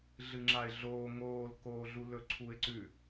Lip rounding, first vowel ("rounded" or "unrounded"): unrounded